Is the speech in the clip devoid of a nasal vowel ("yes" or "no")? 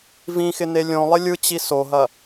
no